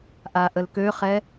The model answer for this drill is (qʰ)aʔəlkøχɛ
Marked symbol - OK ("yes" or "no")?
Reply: no